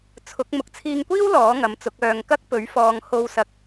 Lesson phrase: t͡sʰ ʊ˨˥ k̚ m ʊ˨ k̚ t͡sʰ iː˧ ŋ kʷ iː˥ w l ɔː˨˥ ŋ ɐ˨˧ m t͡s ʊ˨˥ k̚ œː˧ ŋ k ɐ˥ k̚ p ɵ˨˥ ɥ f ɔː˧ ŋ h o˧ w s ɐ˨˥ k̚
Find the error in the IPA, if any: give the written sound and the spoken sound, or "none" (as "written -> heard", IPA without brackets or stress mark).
none